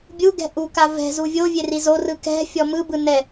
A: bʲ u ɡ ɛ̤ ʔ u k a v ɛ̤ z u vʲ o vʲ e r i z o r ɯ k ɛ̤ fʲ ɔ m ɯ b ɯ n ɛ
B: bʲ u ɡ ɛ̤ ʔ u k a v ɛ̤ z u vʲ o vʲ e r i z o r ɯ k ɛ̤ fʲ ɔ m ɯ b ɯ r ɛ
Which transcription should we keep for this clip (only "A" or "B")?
A